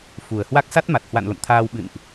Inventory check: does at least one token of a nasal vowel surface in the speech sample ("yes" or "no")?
no